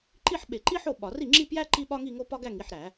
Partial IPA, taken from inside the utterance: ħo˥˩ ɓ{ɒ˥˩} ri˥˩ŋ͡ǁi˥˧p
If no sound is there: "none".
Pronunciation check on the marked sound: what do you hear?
ɒ˧˩˧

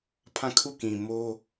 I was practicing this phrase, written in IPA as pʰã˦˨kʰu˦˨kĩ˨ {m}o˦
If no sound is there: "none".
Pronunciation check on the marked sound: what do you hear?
m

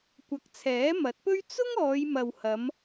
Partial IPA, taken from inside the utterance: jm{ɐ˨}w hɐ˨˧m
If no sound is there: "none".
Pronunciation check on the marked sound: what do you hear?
ɐ˨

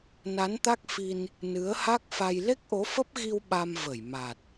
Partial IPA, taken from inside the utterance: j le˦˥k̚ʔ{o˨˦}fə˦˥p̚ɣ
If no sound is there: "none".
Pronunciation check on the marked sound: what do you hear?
o˨˦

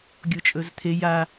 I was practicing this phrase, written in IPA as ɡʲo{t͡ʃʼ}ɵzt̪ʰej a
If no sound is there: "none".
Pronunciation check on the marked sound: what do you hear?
t͡ʃʼ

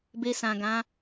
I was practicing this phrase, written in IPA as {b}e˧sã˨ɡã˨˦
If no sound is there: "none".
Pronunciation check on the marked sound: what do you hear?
b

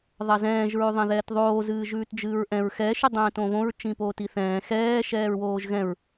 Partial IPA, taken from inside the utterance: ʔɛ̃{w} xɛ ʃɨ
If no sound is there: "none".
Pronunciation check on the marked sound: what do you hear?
ɹ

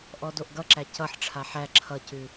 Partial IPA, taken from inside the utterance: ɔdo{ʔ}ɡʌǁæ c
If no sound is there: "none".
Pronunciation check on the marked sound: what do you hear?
ʔ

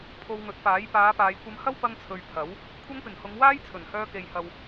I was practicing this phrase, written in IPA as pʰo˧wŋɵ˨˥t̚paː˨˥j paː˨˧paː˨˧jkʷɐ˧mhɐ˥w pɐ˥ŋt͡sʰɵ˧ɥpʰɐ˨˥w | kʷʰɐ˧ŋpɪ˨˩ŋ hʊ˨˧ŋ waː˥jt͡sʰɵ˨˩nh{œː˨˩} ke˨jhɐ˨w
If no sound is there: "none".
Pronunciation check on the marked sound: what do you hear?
œː˧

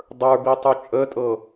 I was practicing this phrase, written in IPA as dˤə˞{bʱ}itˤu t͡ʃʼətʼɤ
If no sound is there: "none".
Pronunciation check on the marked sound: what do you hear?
b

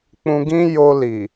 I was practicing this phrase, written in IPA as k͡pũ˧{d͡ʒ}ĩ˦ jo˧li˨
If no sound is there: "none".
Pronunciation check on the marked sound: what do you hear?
ɡ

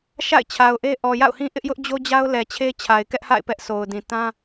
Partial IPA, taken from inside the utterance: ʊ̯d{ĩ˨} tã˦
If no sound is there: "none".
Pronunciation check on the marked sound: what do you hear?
ĩ˨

